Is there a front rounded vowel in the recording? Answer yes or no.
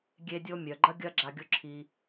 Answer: yes